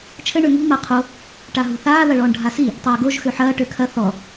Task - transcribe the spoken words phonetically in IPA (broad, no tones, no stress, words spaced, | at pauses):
t͡ʃʰɘ ɳøŋṳ maqʰo | ʈaɦṳθaː ðɐɭɔːɳɖʱasi | tˤɐːɡoʒ xøħɐː ʈøkʰɐ θɔ